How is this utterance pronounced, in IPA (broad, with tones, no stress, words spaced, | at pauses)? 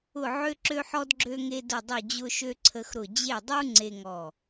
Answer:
ʊ˧˩ʕø˧ǁø˧ħɔ˧d ɡ͡ǁø˧ŋe˧ dʊ˧˩dˤø˧˩d͡ʑʊ˧ʃø˧ ǀʰə˧xɾʊ˧˩ d͡ʑe˧˩dˤu˧ ŋ͡ǀe˧ŋɔ˧˩